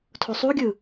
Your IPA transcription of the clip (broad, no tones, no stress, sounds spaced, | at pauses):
tʰ o sˤ u ɡʲ ɯ